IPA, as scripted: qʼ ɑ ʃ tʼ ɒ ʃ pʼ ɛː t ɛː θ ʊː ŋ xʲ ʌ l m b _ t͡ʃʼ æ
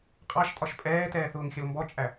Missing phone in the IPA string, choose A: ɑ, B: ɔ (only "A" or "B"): B